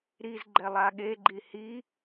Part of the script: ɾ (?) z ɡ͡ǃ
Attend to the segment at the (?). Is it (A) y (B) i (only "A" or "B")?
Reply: B